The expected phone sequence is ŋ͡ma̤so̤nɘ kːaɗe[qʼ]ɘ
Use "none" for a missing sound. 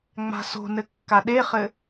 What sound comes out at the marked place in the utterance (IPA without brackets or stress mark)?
χ